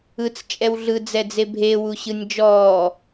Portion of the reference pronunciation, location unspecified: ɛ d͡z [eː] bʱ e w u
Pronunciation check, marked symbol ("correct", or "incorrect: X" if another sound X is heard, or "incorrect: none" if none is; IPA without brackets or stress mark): incorrect: e